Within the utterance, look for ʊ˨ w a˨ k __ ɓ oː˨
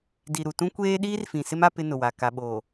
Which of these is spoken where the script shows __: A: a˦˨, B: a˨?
B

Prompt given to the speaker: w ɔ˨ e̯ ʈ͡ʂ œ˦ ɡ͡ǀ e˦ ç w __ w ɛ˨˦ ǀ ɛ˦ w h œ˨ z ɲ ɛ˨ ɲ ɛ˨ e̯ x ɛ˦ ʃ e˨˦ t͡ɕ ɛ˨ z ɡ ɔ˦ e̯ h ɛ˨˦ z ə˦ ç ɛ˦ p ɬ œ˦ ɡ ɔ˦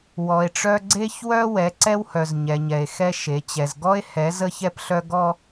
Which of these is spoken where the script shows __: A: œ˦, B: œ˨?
A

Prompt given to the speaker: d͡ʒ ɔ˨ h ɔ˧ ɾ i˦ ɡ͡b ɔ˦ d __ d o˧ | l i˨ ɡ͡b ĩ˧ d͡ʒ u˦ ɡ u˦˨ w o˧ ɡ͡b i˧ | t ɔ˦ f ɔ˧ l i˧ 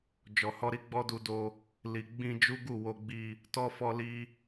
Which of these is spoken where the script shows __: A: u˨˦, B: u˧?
B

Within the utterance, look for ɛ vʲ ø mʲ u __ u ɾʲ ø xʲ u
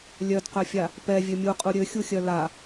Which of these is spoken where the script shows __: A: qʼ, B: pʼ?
A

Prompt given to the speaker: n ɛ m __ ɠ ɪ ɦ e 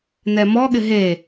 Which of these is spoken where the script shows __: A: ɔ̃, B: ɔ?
B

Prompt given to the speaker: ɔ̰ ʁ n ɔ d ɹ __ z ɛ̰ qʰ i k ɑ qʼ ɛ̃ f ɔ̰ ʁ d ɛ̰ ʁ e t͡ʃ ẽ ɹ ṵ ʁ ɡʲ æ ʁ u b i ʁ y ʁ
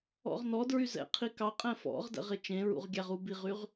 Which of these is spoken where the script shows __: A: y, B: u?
A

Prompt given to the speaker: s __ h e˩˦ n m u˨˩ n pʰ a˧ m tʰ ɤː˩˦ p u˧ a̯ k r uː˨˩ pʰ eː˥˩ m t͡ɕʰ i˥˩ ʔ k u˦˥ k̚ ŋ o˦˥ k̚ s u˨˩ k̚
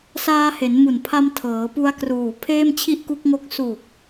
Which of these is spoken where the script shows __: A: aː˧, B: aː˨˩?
A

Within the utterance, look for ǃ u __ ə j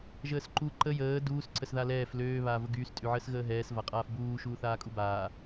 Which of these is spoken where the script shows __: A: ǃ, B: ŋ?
A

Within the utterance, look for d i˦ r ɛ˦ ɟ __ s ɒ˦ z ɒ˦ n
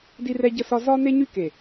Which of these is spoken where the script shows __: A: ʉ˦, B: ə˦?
B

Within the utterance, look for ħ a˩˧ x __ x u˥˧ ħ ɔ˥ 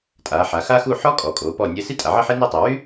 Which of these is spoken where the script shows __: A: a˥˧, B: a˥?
B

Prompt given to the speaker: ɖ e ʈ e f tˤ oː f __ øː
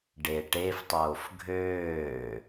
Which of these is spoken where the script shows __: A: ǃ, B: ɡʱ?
B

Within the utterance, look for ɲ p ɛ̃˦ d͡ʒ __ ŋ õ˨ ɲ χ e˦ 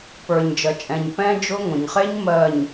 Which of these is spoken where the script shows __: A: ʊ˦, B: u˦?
A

